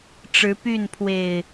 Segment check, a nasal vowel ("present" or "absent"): absent